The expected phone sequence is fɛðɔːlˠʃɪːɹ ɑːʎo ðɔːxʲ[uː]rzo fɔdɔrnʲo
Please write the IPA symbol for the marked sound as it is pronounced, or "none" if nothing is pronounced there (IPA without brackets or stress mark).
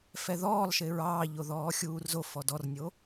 uː